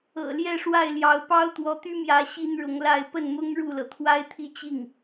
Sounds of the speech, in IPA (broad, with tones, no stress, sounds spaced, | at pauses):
ɤ̰˨˩ l j ɛ˥˧ ʂ w a˥˩ ɪ̯ l j ɑ˧˥ ʊ̯ p ɑ˥ ʊ̯ t̪ w ɔ˧˥ t̪ y˥ m j ä˧˥ ɕ i˥ n ɻ ʊ˧˥ ŋ l a˥˧ ɪ̯ p ə˥˩ n m ʊ˥ ŋ ɻ u˥˩ l ɤ˩ t̪ʰ w a˥ ɪ̯ t̪ʰ i˥˧ t͡ɕ i˥˩ ŋ